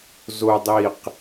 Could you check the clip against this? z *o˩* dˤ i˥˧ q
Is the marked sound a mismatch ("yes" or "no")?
yes